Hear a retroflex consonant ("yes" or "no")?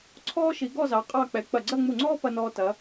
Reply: no